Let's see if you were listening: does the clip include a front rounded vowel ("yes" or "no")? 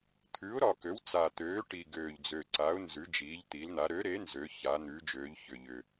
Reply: yes